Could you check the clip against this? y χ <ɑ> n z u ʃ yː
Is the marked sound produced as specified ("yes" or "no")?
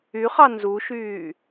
yes